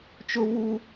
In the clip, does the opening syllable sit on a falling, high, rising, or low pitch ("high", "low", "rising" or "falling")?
high